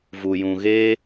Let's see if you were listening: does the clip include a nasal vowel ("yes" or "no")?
yes